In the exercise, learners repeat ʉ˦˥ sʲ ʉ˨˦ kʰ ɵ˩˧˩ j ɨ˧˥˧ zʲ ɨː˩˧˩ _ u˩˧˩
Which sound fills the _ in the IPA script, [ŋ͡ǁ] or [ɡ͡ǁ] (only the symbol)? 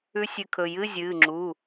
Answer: ŋ͡ǁ